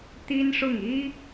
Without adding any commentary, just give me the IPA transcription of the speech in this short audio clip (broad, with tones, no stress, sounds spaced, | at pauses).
t̪ i˥ n ʂ ʊ˥˩ ŋ i˥